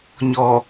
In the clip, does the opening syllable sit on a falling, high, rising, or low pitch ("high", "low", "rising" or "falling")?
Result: low